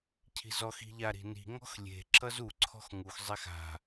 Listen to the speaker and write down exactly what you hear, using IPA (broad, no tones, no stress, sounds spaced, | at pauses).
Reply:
cʰ i̤ z ɔ x i̤ ʎ a ɾ i̤ n i̤ ŋ ɔ̤ x lʲ e̤ ǁ ʌ z u ǀʰ ɔ̤ x ŋ u x zˤ ɛ x a̤